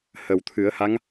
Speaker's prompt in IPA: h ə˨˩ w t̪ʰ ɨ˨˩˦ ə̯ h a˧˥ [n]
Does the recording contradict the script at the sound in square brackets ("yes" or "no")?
yes